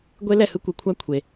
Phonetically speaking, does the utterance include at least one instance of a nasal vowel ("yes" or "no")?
no